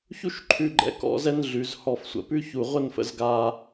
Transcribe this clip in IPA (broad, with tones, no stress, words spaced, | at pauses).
çu˥˧ʃ ǃʰʉ˧ ɡ͡ǃɛ̰˧˩kɔ̰˧ zɛ˥nɮʉ˩˧z hɔ˧˩fsʷə̰˧˩pʉ˥çu˧˩ ʁʷə˥˧nfə̰˧z ɡa˧